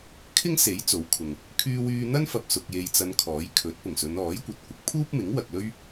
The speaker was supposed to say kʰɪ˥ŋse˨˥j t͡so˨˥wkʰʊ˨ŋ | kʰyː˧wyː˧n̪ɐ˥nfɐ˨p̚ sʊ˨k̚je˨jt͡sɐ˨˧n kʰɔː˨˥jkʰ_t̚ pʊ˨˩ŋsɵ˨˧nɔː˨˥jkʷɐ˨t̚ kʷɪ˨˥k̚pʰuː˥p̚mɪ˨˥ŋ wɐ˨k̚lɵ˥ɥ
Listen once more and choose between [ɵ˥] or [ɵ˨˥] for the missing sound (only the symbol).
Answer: ɵ˨˥